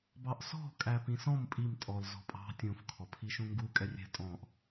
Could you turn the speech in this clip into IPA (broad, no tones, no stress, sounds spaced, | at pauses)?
b ɑ ʔ s ɔ̤ kʼ æ p ĩ s ɔ̃ m pʼ i m tʼ ɔ l z ɔ̤ pʼ ɑ̤ tʲ ũ f kʰ ɔ pʰ i ʃ ũ ŋ ɡ u kʼ ɛ rʲ ɛ̤ tʼ ɔ̃ ʔ